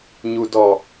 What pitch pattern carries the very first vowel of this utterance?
low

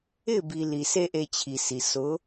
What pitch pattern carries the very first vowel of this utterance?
falling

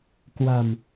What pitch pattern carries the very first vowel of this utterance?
low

